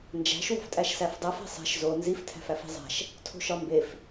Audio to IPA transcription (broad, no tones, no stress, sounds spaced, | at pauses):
n d͡ʒ æ̤ ʃ w o̤ f tʼ æ ʃ s æ f dˤ æ f e̤ sˤ e̤ ʃ z o n z i f tʰ æ̤ f æ f i̤ zˤ æ̤ ʃ | tʰ o̤ ʃ ɒ m b e f